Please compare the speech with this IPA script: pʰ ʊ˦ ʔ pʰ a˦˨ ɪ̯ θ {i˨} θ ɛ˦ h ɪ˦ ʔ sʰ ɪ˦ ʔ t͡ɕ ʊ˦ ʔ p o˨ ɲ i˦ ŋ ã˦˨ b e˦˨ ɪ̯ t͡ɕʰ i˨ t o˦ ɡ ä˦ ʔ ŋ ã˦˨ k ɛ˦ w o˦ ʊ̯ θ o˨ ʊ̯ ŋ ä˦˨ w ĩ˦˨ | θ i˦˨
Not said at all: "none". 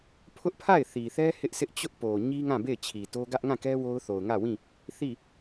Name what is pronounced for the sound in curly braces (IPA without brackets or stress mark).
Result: i˨